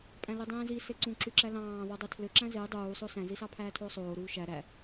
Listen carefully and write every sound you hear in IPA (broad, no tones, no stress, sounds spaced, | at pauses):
pʼ æ̃ l i dˤ ĩː z i s e ǀ ũ ǁ y ǁ æ l ɑ̃ː ðˤ y dˤ e tʰ l ø ǁ æ̃ z e dˤ uː sˤ o s æ̃ z i s ɑ pʰ æː tʰ oː sˤ oː ɾ uː ʃ æ ɾ æ